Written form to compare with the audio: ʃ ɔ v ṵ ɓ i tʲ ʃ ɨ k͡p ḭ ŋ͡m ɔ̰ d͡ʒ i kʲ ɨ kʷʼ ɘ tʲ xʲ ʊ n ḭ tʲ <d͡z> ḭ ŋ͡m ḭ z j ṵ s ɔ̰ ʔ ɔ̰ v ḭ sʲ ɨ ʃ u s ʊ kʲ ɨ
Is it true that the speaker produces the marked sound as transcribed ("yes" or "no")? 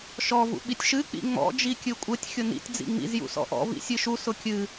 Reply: yes